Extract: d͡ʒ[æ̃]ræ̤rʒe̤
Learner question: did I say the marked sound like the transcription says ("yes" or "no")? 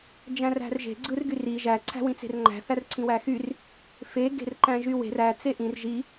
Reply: yes